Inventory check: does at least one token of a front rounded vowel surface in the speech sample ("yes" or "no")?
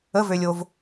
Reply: yes